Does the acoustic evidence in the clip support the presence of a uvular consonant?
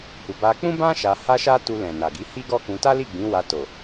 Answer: no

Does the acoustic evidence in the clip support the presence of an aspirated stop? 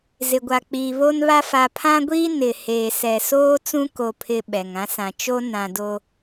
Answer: yes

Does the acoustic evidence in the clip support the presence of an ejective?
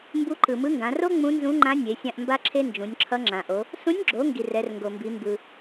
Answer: no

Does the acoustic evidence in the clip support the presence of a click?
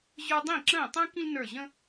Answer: yes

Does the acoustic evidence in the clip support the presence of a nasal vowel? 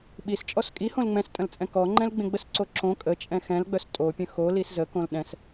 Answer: yes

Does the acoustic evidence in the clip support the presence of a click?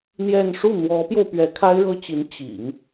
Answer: no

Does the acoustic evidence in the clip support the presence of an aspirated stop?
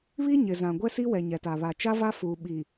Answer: no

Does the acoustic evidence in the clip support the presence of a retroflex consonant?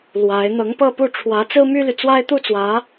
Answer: yes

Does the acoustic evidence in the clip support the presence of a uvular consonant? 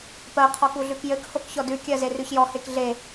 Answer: yes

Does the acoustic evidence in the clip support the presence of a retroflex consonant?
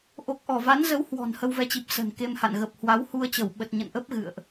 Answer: no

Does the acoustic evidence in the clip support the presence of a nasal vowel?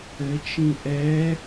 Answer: yes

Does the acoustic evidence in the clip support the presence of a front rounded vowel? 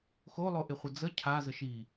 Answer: no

